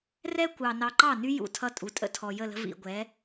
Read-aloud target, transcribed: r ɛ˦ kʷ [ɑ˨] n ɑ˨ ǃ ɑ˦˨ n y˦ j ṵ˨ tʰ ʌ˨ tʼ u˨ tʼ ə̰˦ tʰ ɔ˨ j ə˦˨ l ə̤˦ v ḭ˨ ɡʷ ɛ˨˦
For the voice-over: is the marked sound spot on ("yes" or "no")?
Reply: yes